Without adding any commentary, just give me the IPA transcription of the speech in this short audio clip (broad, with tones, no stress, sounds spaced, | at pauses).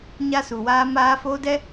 ɲ a˦ s u˨ w aː˦ m aː˦ f oː˦ d ɛ˦